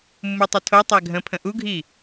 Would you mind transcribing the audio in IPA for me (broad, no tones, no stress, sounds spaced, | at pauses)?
mː u tˤ ʏ tʰ o tˤ æ ɡʱ ə̃ pʰ ə̃ ʔ u ɡʱ i